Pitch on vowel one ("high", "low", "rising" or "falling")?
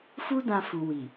high